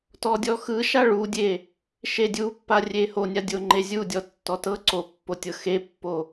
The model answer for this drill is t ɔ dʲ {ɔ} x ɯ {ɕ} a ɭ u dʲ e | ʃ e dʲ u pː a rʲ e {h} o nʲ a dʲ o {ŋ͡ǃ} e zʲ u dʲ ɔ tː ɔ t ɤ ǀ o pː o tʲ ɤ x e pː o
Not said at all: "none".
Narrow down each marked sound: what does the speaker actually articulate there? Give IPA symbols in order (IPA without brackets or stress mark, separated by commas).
ɔ, ʃ, h, ŋ͡ǃ